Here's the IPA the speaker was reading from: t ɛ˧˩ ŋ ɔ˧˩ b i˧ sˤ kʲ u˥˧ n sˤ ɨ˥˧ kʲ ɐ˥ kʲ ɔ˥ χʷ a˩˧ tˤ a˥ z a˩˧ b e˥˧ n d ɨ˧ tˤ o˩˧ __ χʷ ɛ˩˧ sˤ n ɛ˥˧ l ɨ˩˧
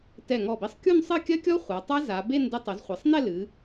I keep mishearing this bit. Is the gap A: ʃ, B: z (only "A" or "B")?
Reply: B